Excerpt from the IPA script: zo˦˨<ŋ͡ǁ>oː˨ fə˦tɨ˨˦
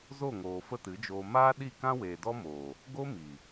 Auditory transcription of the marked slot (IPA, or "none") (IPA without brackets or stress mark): ŋ